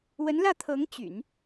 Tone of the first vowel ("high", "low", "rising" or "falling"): rising